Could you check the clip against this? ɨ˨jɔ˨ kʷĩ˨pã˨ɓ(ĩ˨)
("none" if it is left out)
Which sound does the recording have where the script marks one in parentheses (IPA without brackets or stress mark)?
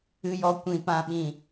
ĩ˨